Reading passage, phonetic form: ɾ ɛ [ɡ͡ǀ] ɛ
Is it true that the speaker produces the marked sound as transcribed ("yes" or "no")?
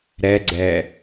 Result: yes